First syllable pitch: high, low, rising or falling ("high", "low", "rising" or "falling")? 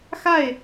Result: falling